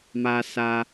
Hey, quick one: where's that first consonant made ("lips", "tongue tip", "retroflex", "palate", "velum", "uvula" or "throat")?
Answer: lips